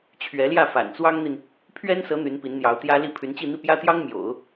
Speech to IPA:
t͡ɕʰ ɥ ɛ˧˥ l j ä˥˩ f a̰˨˩ n t͡s w ɑ˥ ŋ n̪ i˨ n | pʰ ɥ ɛ˥ n s ɤ˧˥ n̪ y˧˥ n p i˧˥ n n̪ j ɑ˧˥ ʊ̯ t̪ j ä˥ l i˥˩ pʰ y˧˥ n t͡ɕ i˥˧ n̪ i˥˩ p j ä˥ t̪ j ɑ˥ ŋ m j o̰˨˩˦ ʊ̯

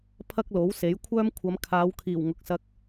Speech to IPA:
pʰ ɐ˥ k̚ l o˨˥ w s e˨˥ j kʷʰ œː˥ m kʷʰ ɐ˨˧ m kʰ aː˨˧ w kʰ iː˨˩ w ŋ ʊ˨ k̚ s ɐ˧ k̚

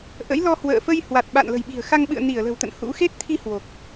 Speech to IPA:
ʔ ə̰˧˥ j l ɔ˧ h w ə̰ː˧˨ f ə˧ j h w a˨˩ t̚ ɓ a̰˧˨ n l ə̤˨˩ j ɓ i̤˨˩ ə̯ x a˧ ŋ ɓ ɨ̰˧˨ ə̯ n i˧˩ ə̯ l ə̤˨˩ w t̪ ə̰˧˨ n h ṵ˧˥ x e˦˥ t̚ t̪ʰ i˧ h w o˨˩ k̚

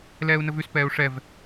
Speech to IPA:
l ɛː u̯ n ə v ʉ s p ɛː u̯ ʂ ɛ v

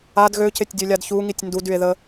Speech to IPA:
a d ɣ ø c e tʲ dʲ ø lʲ a d ç u ŋ i tʲ n d u d y e̯ ð ə

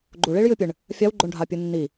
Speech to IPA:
ɡ͡ǃ u ɭ i ɭ j ɨ pʲ ɨ ɳ | fʲ a w ɡ͡ǃ o ɳ ɖʱ a pʲ ɨ nː i

